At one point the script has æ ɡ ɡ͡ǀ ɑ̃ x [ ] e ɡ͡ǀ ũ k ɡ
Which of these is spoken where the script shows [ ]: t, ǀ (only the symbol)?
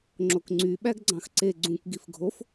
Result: ǀ